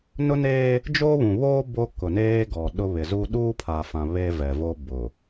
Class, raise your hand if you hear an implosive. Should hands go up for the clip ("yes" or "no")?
yes